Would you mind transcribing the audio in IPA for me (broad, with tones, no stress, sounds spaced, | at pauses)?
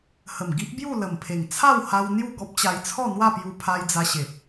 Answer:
h ə˨˩ m ɡ i˦ ʔ b j u˥˧ l ə˨˩ m pʰ e˨˩ ŋ t͡sʰ a˥˧ w h a˧ w n̪ j u˥˧ ɡ ɔ˦ p̚ t͡ɕ a˧ j t͡sʰ ɔ˥˧ n̪ w a˥˧ p j u˧ pʰ a˧ j d͡z a˧ ɕ e˨ p̚